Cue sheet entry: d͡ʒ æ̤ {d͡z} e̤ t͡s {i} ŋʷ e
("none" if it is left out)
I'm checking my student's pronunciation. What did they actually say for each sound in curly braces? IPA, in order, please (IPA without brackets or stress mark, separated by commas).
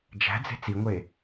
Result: d͡z, i